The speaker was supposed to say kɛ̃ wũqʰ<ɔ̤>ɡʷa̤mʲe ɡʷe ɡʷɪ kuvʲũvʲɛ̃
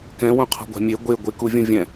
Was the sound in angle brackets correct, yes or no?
yes